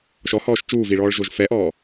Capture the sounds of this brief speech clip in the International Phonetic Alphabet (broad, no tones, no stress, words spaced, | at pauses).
ʃɔhɔːʃ t͡ʃuːviɭɔːɭʒoʒ fɛʔɔː